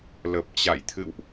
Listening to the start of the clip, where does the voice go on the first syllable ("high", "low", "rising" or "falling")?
low